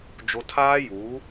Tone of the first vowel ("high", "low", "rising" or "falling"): high